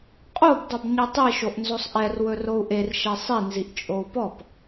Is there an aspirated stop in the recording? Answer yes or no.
no